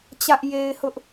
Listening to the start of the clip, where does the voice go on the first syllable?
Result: high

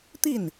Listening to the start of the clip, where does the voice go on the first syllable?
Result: falling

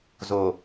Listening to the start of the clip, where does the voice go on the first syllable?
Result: low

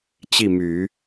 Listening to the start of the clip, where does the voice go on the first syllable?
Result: falling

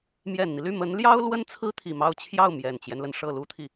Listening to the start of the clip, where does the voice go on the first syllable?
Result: low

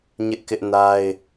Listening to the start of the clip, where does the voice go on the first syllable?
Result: high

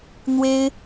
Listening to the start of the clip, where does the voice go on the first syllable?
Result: high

